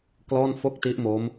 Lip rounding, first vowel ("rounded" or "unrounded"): rounded